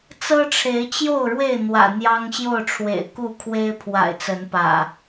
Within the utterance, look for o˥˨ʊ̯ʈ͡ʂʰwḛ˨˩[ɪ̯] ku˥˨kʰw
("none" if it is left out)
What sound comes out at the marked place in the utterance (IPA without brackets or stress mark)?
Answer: ɪ̯